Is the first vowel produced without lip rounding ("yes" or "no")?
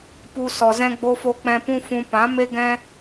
no